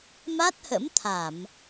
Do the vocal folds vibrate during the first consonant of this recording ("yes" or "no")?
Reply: yes